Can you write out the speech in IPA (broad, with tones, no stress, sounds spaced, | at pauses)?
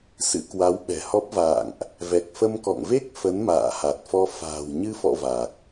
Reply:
s ɨ̰˧˥ k w a˨˦ w ɓ ɛ̤˨˩ h ɔ˦˥ p̚ v a̰ː˧˨ ŋ ʔ | v ɛ˨˩ k̚ f ə˧ m k ɔ̰˧˨ ŋ v e˦˥ k̚ f ə˨˦ n m a̰ː˧˨ h a˨˩ t̚ f ɔ˧ f a̤ː˨˩ w ɲ ɨ˧ f ɔ̰˧˨ v a˨˩ k̚